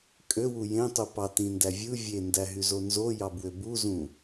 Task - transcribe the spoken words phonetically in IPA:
kʼøwu jẽtˤu pɑtĩndæ vʲɯ vʲendæɦyzo nzojɑbwø buzũ

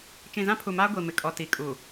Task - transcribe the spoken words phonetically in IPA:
t͡ʃĩ˨zã˦pʰu˨maː˦ ɡʷi˨mɪ˨kʼɔ˨ ti˨kʼu˨

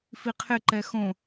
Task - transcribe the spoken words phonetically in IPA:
fiqʰɪǃɛ xõ

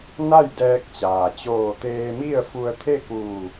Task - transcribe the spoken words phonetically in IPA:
na˥˨jdɛː˧k̚t͡ɕaː˩ t͡ɕoː˧˩t̪eː˧mi˥˨ə̯fu˧ə̯ t̪ʰe˥˨kuː˧˩

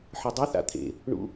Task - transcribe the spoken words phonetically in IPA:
ħɨdˤɨθa̰ t̪ʰḛ | ɳṵ

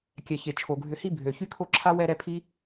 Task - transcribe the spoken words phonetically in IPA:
kʲɛ˩çe˩ t͡ʃʰo˩ɡʱʏ˨hi˦ bʱø˩ çy˦kʰo˦ǁʰa˥ wɛ˦ɾɛ˦pʰi˥

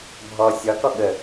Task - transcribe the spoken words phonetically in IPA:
bʱɔ sʲɒkɔ ɠə

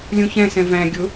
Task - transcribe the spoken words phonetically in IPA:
lʲũçɛ̃sɛ̃ væ̃ ɡʲʊ

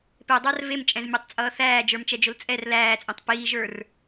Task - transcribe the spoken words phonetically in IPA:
pedˤar vemt͡ʃʼɛ̃zmʲə˞tˤt͡sʼʌː θæːd͡ʒə˞mt͡ʃɛd͡ʒʊl t͡sʼɛr læːt͡sʼẽtˤ piːʒə˞r

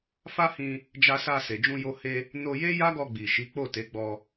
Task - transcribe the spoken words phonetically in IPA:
fa˦hĩ˧ | d͡ʒa˧sa˧se˨ d͡ʒũ˧jo˧he˧ | no˧je˦ ja˦ɡɔ˧ɡ͡bi˨ʃi˨˦ k͡po˦˨te˨˦ɡ͡bɔ˧

